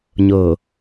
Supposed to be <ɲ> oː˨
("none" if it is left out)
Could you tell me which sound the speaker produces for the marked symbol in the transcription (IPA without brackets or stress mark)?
ɲ